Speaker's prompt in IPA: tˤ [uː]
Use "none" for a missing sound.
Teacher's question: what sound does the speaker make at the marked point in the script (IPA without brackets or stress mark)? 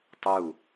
u